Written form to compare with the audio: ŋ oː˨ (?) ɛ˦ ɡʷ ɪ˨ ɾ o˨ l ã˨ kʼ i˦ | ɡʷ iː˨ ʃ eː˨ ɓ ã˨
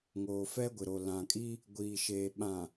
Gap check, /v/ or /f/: f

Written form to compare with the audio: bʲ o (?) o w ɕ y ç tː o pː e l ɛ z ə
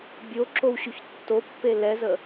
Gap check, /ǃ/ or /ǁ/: ǁ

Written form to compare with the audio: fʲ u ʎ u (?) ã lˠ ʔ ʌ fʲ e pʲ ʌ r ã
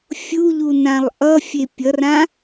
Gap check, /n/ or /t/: n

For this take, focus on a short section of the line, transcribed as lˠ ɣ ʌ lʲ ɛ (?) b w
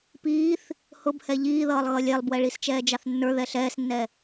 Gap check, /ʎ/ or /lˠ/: lˠ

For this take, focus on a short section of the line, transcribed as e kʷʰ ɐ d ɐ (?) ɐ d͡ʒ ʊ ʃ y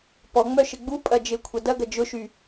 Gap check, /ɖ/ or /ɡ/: ɡ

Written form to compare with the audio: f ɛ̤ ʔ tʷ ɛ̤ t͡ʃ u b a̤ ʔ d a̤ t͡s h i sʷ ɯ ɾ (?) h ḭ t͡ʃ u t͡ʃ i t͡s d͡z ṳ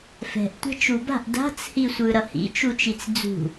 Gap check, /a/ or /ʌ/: ʌ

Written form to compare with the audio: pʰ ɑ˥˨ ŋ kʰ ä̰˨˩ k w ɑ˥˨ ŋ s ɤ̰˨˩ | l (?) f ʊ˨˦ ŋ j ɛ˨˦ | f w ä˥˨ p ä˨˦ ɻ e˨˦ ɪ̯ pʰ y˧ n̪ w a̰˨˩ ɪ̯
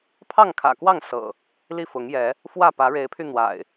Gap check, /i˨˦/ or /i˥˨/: i˥˨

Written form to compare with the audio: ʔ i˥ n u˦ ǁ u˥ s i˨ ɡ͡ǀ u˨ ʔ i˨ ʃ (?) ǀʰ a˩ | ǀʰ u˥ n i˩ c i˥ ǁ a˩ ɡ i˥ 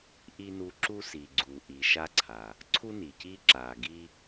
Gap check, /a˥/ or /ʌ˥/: a˥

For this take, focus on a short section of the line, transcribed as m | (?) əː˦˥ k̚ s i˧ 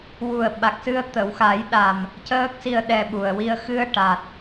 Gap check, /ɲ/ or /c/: c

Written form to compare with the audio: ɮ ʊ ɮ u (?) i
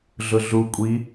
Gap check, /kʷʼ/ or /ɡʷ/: kʷʼ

